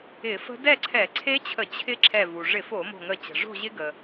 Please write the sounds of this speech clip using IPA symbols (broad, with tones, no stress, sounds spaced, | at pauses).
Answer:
ɪ˧˩˧ f ə̤˦˥ d ɛ˥˨ ǀʰ ɛ˧˩˧ ǀʰ e˦˥ t͡ɕʰ ə˧˩˧ t͡ɕʰ ɪ˦˥ ǁʰ ɛ˧˩ v u˩ ʐ ɪ˧˩˧ f o˧˩˧ m o̤˧˩ ŋ ə˧˩ t͡ɕ ə̤˩ ʐ o̤˥˨ ʑ ɪ˦˥ ɡ ə˩